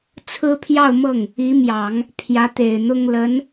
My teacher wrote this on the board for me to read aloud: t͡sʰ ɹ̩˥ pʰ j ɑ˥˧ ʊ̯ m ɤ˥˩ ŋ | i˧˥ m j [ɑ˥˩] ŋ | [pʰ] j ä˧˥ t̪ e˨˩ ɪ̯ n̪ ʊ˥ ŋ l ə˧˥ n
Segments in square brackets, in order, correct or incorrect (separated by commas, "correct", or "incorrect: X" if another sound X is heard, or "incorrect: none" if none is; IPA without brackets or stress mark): incorrect: ɑ˨˩˦, correct